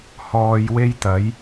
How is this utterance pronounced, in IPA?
h ɔː˨ j w e˥ j t̪ ɐ˨˥ j

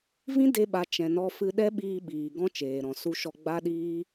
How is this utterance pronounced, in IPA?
v ĩ˦ d e˧ ɓ a˨ t͡ʃ ɛ̃˨ n ɔ˧ f ɨ˧ ɗ ɛ˦ ɓ iː˧ ɓ iː˨ ɡ ɔ̃˦ t͡ʃ eː˨ ɾ ɔ̃˨ s u˧ ʃ ɔ˧ ɡ͡b a˦ ɗ iː˦

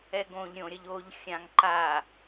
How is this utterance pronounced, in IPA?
ɛ ɡ õ ʎ ɾʲ õ ɾʲ ʌ ʎ o ʎ xʲ ã ŋ ǃ a

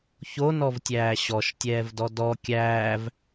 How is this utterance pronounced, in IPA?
ç o n ɔ v tʲ æː ɕ ɔ ʃ tʲ ɛː v d ɔ d ɔ kʲ æː v

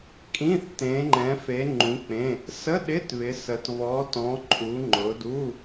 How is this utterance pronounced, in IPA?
kʼ ĩ˧˥˧ θ t ẽ˨˦ ŋ͡ǃ ɛ̃˨˦ f e˨˦ ŋ͡ǃ ũ˨˦ k͡p ẽ˧˥˧ | s ə˧˥˧ ɗ ɪ˧˥˧ t β ɪ˨˦ s ə˨˦ t β ɔ˨˦ t ɔ̃˨˦ ǃʼ u˨˦ ŋ͡ǃ ʊ˨˦ d u˧˥˧

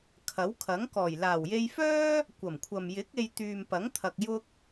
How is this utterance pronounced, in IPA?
kʰ ɐ˨˥ w kʰ ɐ˨˥ ŋ k ɔː˨˩ j l aː˨˩ w j e˧ j f œː˥ | kʷ ɐ˨˩ m kʷʰ ɐ˨ m j ɪ˨˥ k̚ e˧ j t̪ yː˨ m p ɐ˨˥ ŋ t̪ʰ ɐ˨ k̚ j ʊ˧ k̚

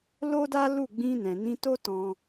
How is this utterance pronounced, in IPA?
l o˦ d a˦ l u˦˨ ɡ͡b ĩ˧ n ɛ̃˨ n ĩ˧ t o˦ t ɔ̃˧

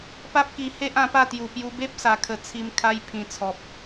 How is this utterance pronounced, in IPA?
p a˦ p̚ k i˧ h e˦ ʔ ã˧ p a˥˧ t̪ j u˨˩ p j u˧ b e˦ p̚ s a˨˩ kʰ ə˨˩ t͡sʰ i˧ m kʰ a˧ j pʰ ĩ˨˩ t͡sʰ ɔ˨ p̚

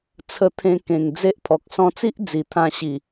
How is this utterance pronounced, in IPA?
t͡sʰ ə˧ t̪ʰ ẽ˧ k ẽ˨˩ ŋ d͡z e˦ ʔ pʰ ɔ˨ k̚ s ɔ̃˧ t͡s i˦ ʔ d͡z i˨˩ t̪ʰ ã˧ ɕ i˨˩

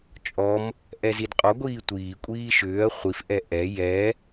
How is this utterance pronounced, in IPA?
t͡ʃʼ ɔ m | ʔ ɛ z i d qʼ ɔ ɡʷ iː tʷ iː kʷʼ iː ʃ ʏː ɐ̯ χʷ i f ʔ ɛ ʔ ɛ j ɛ

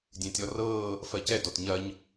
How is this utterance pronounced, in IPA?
dʲ ẽː tʲ ɔ r ɤː | f ɜ c ɛ d ɔ t ɲ ɐ ɲ

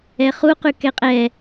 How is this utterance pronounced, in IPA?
ɛ χ u q ʉ k ɛ qʼ ɛ

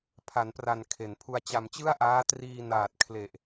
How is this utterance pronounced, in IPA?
pʰ a˩˦ n p r a˨˩ n kʰ e˩˦ n pʰ u˧ a̯ t͡ɕ a˧ m t͡ɕ ɯ˥˩ a̯ ʔ aː˦˥ t r iː˧ n aː˨˩ t̚ kʰ l e˨˩ ʔ

